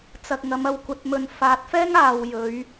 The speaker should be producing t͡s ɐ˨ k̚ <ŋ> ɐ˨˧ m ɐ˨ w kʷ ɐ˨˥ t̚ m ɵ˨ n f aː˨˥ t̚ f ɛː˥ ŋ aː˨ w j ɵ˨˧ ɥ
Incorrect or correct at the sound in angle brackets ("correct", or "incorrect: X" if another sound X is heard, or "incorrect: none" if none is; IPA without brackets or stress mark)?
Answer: correct